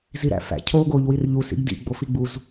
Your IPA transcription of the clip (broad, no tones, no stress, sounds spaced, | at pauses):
z i ɾ æ̰ f æ̰ cʰ oː ɡ oː ʎ w i r ʎ u s ḭ ɡ d ḭ ɡ͡b o f i ɡ͡b u z